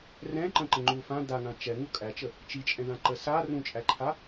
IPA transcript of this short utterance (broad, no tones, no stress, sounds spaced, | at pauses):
r ɛ̃ ǃ ə̃ ǃ ə̃ ŋ͡ǃ u f ã d a ŋ ã t͡ʃ ɛ ŋ u kʼ æ t͡ʃ ə | t͡ʃ i t͡ʃʼ ɛ̃ ð ã ǃ ə s a r ũ t͡ʃʼ æ ǃʰ a